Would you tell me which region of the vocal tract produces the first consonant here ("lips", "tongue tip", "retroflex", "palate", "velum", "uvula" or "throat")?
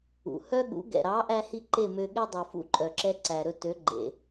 throat